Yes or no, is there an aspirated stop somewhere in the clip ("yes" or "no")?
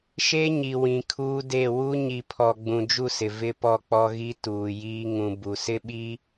yes